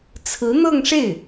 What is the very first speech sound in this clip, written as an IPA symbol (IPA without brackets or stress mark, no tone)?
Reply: t͡sʰ